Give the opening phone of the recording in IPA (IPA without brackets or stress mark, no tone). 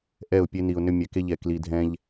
ʔ